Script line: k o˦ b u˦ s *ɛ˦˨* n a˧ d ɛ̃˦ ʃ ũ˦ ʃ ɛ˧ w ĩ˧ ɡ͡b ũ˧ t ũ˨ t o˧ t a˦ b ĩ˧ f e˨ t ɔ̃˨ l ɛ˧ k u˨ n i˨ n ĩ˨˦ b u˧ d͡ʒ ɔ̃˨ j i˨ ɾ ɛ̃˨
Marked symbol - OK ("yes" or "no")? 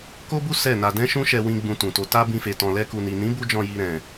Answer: yes